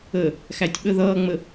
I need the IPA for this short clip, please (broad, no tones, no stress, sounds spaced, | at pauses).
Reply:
ə | x æ tʲ ɓ ə ð ʌː ŋ͡m ə